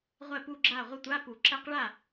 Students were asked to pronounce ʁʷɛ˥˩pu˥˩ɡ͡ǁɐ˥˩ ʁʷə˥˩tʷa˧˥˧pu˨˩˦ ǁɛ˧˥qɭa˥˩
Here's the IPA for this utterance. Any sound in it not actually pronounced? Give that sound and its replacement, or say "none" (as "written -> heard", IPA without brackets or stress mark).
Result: ɐ˥˩ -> a˥˩